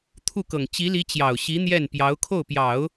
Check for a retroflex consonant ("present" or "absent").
absent